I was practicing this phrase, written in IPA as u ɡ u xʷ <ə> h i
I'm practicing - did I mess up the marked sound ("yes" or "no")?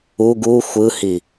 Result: yes